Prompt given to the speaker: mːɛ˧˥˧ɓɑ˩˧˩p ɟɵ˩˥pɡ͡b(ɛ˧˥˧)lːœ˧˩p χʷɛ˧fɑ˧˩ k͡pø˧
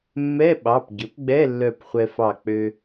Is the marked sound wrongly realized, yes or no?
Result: no